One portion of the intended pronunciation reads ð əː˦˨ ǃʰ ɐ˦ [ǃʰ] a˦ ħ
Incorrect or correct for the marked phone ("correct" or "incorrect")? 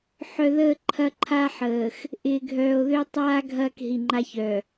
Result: correct